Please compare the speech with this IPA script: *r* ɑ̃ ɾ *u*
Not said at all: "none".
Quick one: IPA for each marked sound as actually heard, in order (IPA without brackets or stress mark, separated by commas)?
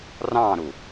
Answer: r, u